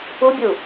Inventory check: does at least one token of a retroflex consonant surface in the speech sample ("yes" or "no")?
no